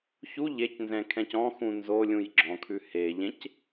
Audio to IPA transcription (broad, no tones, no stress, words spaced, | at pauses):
çu ʎecnzɛ̃kʰɛ̃c ɔ̃xũ nzolʲũj ɡ͡ǁɔ̃kʰʉ heʎẽc